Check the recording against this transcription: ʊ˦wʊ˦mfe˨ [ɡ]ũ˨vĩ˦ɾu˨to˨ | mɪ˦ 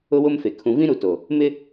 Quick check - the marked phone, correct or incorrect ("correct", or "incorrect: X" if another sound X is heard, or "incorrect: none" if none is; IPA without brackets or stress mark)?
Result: incorrect: kʰ